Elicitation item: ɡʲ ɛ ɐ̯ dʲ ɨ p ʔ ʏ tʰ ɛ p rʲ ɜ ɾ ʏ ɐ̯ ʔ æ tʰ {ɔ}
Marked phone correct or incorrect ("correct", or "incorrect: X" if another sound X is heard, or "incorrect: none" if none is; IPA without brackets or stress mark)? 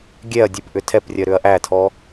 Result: correct